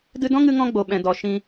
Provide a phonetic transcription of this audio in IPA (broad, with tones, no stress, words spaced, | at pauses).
dɨ˧dɔ̃˦ŋɨ˧ŋɔ̃˧ ɡ͡bo˨ɓɛ̃˨dɔ˨ ʃĩ˧